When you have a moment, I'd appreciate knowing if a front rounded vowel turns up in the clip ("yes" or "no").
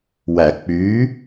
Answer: yes